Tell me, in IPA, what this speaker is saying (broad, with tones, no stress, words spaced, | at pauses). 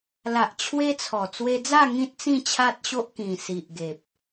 la˨ʔ t͡ɕʰwe˦t͡sʰɔ˨˩ t͡swe˧d͡za˥˧ ŋĩ˦t̚t͡sĩ˥˧t͡ɕʰa˦t̚ ɕo˦ʔkĩ˨˩ si˨ʔɡe˨p̚